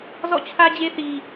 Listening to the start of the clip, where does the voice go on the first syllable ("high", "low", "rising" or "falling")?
falling